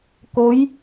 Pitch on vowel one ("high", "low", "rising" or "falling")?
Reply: rising